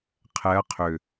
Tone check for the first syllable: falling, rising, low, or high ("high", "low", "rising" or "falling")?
rising